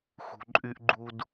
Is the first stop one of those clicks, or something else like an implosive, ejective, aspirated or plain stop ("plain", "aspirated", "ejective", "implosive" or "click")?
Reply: click